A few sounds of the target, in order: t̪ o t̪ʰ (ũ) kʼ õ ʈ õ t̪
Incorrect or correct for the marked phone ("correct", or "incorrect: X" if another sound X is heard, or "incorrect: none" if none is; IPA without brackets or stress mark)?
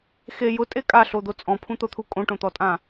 incorrect: u